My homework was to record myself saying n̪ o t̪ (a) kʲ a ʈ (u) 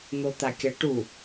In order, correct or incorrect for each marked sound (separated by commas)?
correct, correct